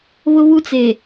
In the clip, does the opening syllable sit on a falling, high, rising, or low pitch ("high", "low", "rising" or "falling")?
high